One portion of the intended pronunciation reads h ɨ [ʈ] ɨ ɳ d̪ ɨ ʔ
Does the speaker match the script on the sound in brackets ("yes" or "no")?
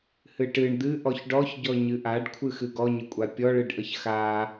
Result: yes